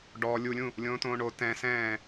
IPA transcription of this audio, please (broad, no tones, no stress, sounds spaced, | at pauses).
ɖ ɔː lʲ u lʲ ũ | lʲ õː t õː ɳ o t ɛ̃ s ɛ̃ː